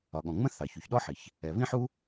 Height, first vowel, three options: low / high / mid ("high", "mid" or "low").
low